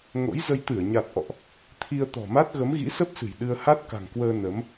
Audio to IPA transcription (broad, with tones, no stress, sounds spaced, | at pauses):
ŋ o̰˧˥ j z ə˧ j t̪ ɨ˧˩ ə̯ ɲ a˨˩ t̚ ʔ ɔ̰˧˨ ʔ | t̪ʰ i˧ ə̯ t̪ ɔ̤˨˩ m a˦˥ t̚ ɣ ə˨˦ m ɣ ḭ˧˥ s ə˦˥ p̚ s ɨ̤˨˩ j ɗ ɨ˧ ə̯ h a˦˥ t̚ k a̤˨˩ ŋ k w əː˧ n ə˨˦ m